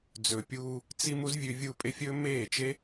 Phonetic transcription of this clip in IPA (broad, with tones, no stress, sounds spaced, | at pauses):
d͡z ɵ˨ pʲ uː˧ | t͡s i˧ m u˦ z vʲ ʉ˧ vʲ u˦˨ pʼ e˦ fʲ ɵ˦ m eː˦˨ t͡ʃ e˦